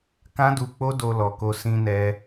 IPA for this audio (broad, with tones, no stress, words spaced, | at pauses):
kã˦du˧k͡po˦ do˧lɔ˨ko˧ sĩ˧nɛ˧